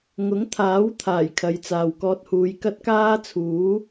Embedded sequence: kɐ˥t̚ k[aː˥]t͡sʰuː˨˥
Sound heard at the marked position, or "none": aː˥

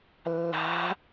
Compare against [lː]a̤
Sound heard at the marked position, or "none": lː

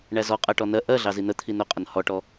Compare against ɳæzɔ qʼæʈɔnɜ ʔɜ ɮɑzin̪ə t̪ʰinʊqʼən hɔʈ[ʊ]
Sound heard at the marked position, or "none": ɔ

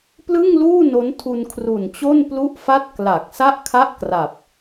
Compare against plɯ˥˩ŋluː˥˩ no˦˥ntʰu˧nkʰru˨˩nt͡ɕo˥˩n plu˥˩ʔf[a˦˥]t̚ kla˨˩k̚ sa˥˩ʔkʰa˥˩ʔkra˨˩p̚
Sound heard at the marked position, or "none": a˥˩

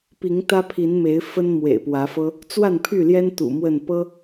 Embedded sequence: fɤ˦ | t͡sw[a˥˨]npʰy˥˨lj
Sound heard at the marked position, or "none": a˥˨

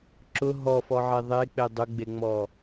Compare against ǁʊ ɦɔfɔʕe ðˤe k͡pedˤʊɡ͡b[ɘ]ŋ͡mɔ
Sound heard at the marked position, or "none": e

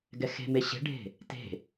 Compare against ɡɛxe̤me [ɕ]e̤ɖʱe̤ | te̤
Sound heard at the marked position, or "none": ɕ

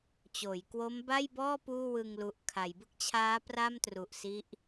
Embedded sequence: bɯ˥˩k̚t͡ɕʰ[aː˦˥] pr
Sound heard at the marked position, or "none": aː˦˥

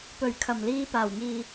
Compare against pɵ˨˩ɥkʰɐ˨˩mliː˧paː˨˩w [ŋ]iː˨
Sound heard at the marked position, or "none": ŋ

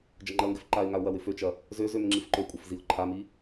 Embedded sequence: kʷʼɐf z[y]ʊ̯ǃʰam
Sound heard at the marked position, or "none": i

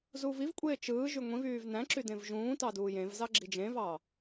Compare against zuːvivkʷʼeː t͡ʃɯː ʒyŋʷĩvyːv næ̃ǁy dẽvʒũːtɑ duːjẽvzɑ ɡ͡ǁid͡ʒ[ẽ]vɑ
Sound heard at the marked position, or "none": ẽ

